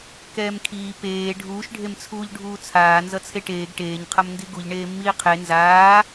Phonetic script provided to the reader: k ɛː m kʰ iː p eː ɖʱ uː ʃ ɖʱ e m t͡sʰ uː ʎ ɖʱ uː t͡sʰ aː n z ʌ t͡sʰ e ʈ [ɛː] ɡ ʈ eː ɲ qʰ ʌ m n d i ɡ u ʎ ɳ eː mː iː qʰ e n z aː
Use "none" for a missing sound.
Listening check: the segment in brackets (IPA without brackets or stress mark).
eː